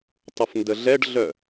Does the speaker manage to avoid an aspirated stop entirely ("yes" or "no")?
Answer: yes